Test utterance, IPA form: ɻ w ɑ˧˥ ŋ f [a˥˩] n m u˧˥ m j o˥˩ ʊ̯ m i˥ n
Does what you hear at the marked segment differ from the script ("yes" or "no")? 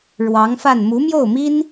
no